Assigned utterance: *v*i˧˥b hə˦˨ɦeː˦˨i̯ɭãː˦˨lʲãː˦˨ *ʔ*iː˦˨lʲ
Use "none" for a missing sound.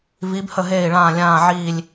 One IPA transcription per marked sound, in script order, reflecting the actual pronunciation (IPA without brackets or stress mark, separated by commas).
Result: v, ʕ